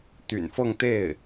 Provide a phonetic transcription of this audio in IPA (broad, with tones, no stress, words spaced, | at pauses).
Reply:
t̪y̰˨˩nfɤ˥˧ŋt̪e˥˩ɪ̯